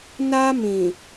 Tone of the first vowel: high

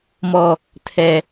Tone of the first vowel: low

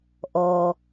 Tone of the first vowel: low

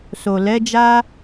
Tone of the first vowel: low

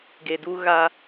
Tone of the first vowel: low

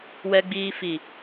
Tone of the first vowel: low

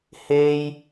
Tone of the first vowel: high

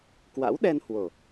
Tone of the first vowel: rising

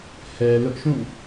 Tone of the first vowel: low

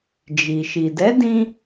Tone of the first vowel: low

